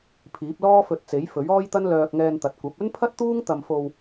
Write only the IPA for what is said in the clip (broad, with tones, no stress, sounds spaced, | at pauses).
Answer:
pʰ iː˨˥ p̚ l ɔː˥ f ɵ˧ t̚ t͡s e˨˥ j f ɵ˨˥ ɥ ɔː˥ j t̪ ɐ˥ n l œː˧ k̚ ŋ ɛː˧ n t̪ ɐ˨ t̚ kʷ ɐ˨˥ p̚ ɵ˥ n pʰ ɐ˥ t̚ t̪ uː˥ ŋ t̪ ɐ˧ m f o˧ w